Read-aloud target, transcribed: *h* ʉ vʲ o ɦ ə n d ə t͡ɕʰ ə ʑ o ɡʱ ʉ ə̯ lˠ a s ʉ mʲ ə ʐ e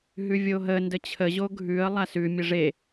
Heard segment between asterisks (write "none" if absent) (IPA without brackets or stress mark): ɦ